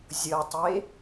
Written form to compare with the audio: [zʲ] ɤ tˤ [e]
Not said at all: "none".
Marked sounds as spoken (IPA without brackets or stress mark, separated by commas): zʲ, e